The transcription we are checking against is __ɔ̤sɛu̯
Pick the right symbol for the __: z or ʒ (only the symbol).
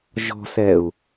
ʒ